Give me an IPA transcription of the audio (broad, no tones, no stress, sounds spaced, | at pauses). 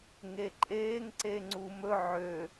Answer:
ŋ e ǃʼ eː ŋ ǀ e ŋ͡ǀ u m ɵ ʕ ø